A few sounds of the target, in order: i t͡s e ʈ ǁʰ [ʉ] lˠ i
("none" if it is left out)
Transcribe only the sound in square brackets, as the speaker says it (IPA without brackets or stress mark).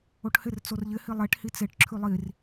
ʉ